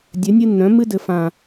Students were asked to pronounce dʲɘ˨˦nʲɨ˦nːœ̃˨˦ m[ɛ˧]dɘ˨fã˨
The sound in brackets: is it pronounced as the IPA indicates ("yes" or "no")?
no